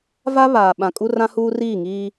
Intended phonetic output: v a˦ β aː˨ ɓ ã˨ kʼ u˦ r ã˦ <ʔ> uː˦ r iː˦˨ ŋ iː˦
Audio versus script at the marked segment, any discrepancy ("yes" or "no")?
yes